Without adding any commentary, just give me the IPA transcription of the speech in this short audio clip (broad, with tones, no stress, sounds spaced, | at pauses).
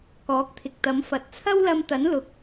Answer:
k ɔː˨˥ k̚ t̪ʰ ɪ˨ k̚ t̪ ɐ˨˥ m f ɐ˨ t̚ t͡sʰ ɐ˥ w l ɐ˧ m t̪ ɐ˨˥ n l ʊ˨ k̚